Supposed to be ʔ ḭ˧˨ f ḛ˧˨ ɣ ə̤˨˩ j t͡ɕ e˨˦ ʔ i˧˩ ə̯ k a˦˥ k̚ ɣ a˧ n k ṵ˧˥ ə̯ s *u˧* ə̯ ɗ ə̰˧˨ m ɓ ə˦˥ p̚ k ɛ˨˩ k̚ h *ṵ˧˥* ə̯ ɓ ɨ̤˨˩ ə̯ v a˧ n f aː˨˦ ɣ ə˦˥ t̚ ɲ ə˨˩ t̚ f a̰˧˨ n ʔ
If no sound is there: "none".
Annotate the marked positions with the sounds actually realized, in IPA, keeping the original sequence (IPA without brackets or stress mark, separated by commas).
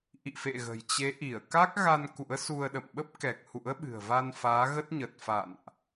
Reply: u˧, ṵ˧˥